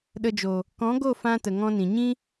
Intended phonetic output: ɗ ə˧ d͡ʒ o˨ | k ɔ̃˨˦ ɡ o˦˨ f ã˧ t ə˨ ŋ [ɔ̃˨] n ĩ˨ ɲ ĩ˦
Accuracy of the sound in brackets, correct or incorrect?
incorrect